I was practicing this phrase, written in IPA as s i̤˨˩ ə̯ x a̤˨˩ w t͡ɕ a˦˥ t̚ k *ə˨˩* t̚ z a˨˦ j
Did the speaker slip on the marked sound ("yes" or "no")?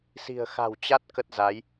yes